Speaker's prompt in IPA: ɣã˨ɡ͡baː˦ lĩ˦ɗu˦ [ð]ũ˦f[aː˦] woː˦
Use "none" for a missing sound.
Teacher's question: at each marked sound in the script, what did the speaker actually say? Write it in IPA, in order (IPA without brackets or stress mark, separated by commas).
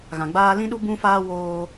b, aː˦